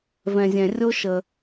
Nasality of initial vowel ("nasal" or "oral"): nasal